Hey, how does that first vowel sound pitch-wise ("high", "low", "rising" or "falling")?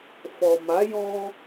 low